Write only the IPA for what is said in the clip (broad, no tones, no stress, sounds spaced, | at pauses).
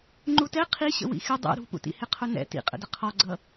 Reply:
ŋ͡ǃ u t ɛ qʰ i ɕ ə̰ w ḭ x ɪ dˤ ɛ̰ ɾ ṳ p ṵ t ḭ h ɪ qʰ ʊ n ɛ̰ t ḭ qʼ ə̰ d ə qʰ ɔ ɡ͡ǀ ʌ